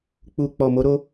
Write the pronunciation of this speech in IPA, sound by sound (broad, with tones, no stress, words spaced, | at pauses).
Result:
k͡pu˨k͡pɔ˨ mo˨˦ɾo˦